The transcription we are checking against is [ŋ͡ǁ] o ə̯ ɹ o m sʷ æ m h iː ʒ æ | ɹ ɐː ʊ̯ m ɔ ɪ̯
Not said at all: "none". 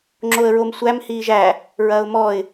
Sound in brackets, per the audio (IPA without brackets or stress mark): ŋ͡ǁ